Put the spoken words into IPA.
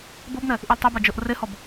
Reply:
b ɤ b n̪ ɛ | ʔ i l tˤ e b a d͡ʒ ɤ ʔ r e h ɔ b

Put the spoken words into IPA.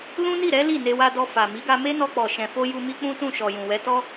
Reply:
l ũ˦ n i˦˨ ɾ ɛ˨˦ l i˦˨ n e˧ w a˧ d ɔ˧ f a˨ m i˨˦ ɡ a˧ m e˦ n ɔ˧ k͡p ɔ˨ ʃ ɛ̃˨ f o˧ j u˧ m i˦ k͡p ũ˦ t ũ˦˨ ʃ ɔ˨ j ũ˨ w ɛ˨˦ t ɔ˦

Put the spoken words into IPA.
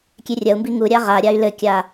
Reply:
kʲ e rʲ ɐ u̯ m b i ŋ u ɾʲ a ʁ a ɾʲ a y̯ l ɘ kʲ a

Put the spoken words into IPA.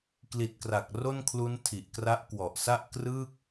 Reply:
k l i˨˩ t̚ k r a˨˩ k̚ r o˥˩ n kʰ l u˦˥ n tʰ i˨˩ ʔ k r a˦˥ ʔ k w ɔ˨˩ ʔ s a˥˩ ʔ k r ɯ˥˩ k̚

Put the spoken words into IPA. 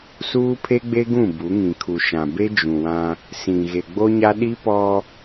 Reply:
s uː˦ pʰ e˦ ɡ͡b e˦ ɡ ũ˦˨ b u˨˦ ŋ ĩ˨ kʰ u˨ ʃ ã˨ b e˦ d͡ʒ ũ˨ w ã˦ | s ĩ˨ ɣ e˨ ɡ͡b o˦ ɲ a˦ ɗ i˦ p ɔ˦

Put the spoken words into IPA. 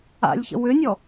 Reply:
a̰ lʲ ç ə̰ w ʏ nʲ ɔ

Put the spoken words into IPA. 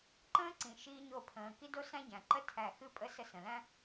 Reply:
ǃ ə̃ː˦ ǀ ĩ˨ ʃ iː˦ ɲ o˦˨ pʰ ə̃ː˨ k i˦ d o˦ s æ̃˦ ɟ æ̃˨ ǃ ə˦ tʰ æ˦˨ x ɨ˦ pʼ ə˦ s ə˦˨ s ə̃˨ l æ̃˦

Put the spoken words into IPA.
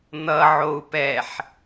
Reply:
n̪ ʌ ʕ o u̯ p ɛ ħ

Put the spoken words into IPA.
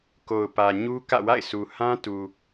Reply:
k o˨ ʊ̯ p ä˨ ɲ u˦ k ä̰˦˨ w a̰˦˨ ɪ̯ s u˨ h ã˦ t u˨

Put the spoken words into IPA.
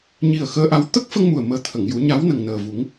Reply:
ɲ i˨˩ ə̯ x əː˧ ʔ a˧˥ w t̪ ə˦˥ k̚ f ə˧ ŋ m u˨˩ ə̯ m əː˨˩ t̪ʰ ə˨˩˨ ŋ j u˨˩˦ ɲ a˧˥ w n ə˨˩ ŋ n əː˨˩ v u˨˩˦ ŋ

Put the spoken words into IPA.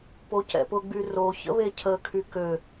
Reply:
p o c ɛ̰ p ʊ ɡ͡b y r o ç ə̰ β e cʰ ə kʰ y k ø

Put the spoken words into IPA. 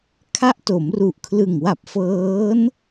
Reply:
kʰ a˦˥ ʔ t o˩˦ m r u˨˩ ʔ kʰ l ɯ˨˩ ŋ w a˨˩ p̚ f ɤː˦˥ n

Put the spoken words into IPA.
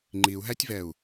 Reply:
ŋ͡ǃ i u̯ ɦ æ tʲ v ɛ u̯

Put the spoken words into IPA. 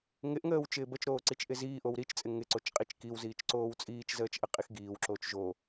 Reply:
ŋ ɪ ʔ ŋ əː w t͡ʃ ɪː b ə t͡ʃ ɾ oː ǀ i t͡ʃ ʔ ɪ z iː ʔ o w ɾ i t͡ʃ t͡sʼ ɪ ŋ ɪ ǀ o t͡ʃ qʼ i t͡ʃ k i w z iː t͡ʃ ǀ oː w t͡sʼ iː t͡ʃ z əː t͡ʃ ʔ ə qʼ i x ɡ iː w ǁ oː t͡ʃ ʒ o

